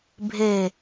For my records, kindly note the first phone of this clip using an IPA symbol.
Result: bʱ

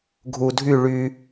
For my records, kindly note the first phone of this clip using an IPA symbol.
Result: ɡʱ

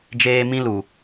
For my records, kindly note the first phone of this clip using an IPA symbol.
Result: d͡ʒ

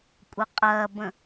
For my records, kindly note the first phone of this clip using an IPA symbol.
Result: kʷʼ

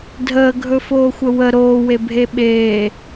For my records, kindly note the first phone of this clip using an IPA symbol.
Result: dʱ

